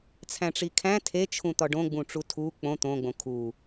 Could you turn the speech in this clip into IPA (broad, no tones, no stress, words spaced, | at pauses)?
t͡sʰæ̃ʈ͡ʂikʰæ̃ tʰet͡ʃʰũ t̪ɒɖõɡ͡bũ ʈ͡ʂutʰu k͡põ t̪õɡ͡bõ kʰu